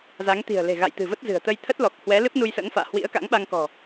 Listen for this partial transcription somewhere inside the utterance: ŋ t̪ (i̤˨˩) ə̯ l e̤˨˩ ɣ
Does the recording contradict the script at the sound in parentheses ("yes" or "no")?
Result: no